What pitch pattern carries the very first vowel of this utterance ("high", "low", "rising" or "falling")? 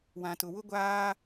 low